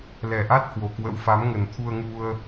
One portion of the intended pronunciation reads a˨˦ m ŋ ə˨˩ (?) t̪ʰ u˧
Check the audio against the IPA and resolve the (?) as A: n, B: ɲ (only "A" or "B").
A